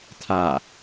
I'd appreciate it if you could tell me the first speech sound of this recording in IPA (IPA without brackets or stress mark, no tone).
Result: tʰ